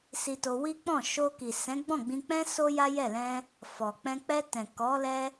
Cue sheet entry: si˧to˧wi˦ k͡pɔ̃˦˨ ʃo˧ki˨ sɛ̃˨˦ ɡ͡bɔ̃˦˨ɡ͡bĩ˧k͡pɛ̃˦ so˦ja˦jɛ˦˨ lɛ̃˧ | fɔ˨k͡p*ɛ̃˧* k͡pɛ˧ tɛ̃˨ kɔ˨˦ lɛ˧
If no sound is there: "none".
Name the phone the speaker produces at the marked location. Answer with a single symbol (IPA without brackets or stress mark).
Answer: ɛ̃˧